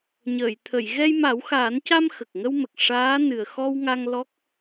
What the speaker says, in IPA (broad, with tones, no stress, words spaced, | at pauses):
ɲəː˨˩˨jt̪ʰə˨˩˨j ɣɛ˧jma˨˩˦wxaː˨˩˦nca˧m xə˨˩k̚ŋə˧wmə˨˩k̚ ʂaː˧˥ nɨ˨˩ə̯xɔ˧wŋa˧ŋ lɔ˦˥k̚